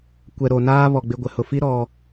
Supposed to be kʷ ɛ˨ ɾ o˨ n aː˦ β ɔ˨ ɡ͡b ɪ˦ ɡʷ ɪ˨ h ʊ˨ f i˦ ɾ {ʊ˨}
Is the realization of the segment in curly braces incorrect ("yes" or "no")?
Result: yes